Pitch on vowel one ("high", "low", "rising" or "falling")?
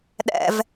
low